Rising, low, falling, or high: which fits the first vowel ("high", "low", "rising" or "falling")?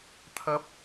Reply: high